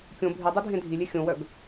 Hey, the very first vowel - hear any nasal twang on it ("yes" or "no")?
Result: yes